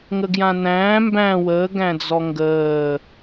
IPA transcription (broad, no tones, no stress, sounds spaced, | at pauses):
ŋ ə ɡ j ã n æ̃ː m b æ̃ w əː ɡ æ̃ d͡z ɔ ŋ ɡ əː